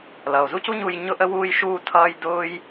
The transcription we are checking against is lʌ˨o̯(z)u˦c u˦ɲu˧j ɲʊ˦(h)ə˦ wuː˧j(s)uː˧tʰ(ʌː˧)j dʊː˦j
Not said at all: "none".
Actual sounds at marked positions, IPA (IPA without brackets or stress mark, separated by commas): z, ʔ, ʃ, ʌː˧